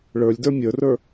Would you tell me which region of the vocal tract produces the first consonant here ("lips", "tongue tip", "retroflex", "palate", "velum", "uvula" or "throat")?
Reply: retroflex